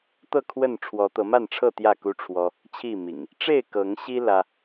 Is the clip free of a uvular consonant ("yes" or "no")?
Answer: yes